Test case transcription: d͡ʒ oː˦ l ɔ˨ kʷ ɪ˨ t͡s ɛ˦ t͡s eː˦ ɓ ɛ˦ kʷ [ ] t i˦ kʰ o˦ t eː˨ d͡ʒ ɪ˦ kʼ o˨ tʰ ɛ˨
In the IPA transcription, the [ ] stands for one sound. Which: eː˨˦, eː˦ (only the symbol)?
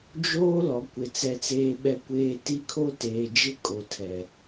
eː˦